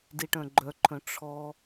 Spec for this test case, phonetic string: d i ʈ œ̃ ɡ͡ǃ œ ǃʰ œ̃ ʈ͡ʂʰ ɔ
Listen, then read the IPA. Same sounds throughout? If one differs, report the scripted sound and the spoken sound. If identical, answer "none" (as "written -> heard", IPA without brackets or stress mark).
none